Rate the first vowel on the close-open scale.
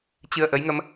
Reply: close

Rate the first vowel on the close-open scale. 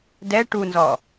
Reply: mid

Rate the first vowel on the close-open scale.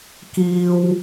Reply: close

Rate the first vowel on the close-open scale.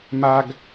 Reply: open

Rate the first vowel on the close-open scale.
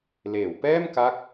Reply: mid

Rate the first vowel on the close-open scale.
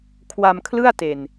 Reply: open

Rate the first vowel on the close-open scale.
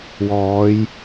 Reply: mid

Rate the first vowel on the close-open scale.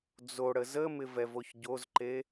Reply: mid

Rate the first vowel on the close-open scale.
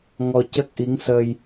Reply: mid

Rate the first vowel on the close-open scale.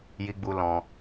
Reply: close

